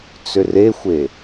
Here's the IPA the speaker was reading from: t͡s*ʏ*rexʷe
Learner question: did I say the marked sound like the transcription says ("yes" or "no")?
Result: yes